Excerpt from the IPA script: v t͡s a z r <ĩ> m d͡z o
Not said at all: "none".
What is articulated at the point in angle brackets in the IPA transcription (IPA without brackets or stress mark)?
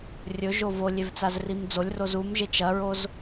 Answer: i